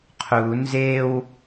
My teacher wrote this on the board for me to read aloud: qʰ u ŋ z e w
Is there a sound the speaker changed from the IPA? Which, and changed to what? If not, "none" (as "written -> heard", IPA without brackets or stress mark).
ŋ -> n